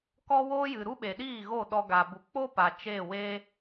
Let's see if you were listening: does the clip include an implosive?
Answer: yes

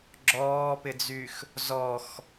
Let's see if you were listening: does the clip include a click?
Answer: yes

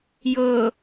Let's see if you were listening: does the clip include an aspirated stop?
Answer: no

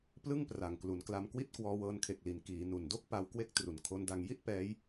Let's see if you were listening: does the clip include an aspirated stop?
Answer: yes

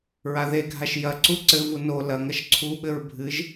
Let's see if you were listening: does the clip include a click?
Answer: yes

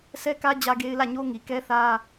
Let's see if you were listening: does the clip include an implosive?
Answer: no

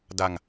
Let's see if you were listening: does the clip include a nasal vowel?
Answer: no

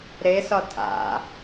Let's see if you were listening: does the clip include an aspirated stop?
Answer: yes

